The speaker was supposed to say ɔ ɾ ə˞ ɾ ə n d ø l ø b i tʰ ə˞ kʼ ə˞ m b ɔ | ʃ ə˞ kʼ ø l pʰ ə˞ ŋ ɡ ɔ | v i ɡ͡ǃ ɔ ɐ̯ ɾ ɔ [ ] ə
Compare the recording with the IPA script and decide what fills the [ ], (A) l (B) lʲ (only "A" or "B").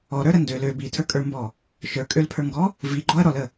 A